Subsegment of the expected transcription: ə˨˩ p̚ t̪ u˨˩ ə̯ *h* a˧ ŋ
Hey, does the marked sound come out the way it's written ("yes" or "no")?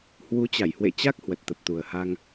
yes